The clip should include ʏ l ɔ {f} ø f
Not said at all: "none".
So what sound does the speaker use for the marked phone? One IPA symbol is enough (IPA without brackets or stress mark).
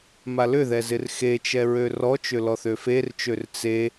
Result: θ